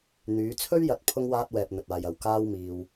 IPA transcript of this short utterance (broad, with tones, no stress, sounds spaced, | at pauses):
n̪ yː˨˧ t͡sʰ ɵ˥ ɥ j ɐ˧ t̚ pʰ ʊ˥ ŋ w aː˥ t̚ w ɛː˧ p̚ n̪ ɵ˧ t̚ aː˧ j ɐ˧ w k aː˥ w m iː˧ w